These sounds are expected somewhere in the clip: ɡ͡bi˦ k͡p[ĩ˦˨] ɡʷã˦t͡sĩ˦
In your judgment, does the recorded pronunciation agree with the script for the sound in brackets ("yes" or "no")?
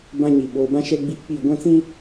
no